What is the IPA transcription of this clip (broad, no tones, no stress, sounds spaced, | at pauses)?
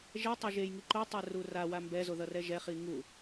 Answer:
ʒ ɛ tˤ e ʒ e j ŋ i ǃ o tˤ ɛ r u r a w a m b ɛ z o ð ʌ r ɛ ʒ ɛ χ i ŋ u